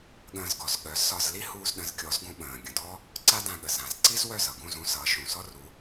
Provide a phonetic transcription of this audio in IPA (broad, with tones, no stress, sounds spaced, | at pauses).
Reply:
ɠ ə̃ː˧ z ɡ ɔ˩ z ɠ œ˩˥ z s ɒ˧ z l i˥ h uː˧ z ɗ ə̃˩˥ z kʲ ɔ˩˥ z ɡ ũ˧ ɓ ə̃ː˩ ɡʲ ə̃˩ d ɔ˥ | ǀ a˥ d ã˧ ɠ ə˩ z ã˩ z ǀ i˥ z w œ˥˩ z ʌ˩ ɡ ũ˥˩ z ũ˧ s ʌː˩˥ ʃ ũ˩ s ɔ˥ r u˩˥